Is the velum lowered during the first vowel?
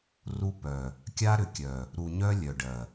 no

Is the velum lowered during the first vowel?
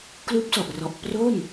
no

